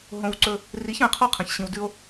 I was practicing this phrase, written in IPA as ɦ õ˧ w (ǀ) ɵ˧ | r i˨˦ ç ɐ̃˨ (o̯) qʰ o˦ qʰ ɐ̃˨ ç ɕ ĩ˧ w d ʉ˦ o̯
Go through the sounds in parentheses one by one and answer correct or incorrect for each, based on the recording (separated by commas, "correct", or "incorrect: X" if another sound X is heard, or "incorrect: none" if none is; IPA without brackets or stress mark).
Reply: correct, incorrect: e̯